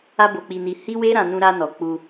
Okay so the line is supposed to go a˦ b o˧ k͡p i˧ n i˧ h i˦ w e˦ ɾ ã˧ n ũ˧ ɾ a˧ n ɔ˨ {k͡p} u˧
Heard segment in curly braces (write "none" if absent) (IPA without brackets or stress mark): k͡p